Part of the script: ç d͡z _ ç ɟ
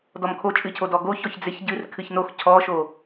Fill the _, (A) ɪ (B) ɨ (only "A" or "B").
A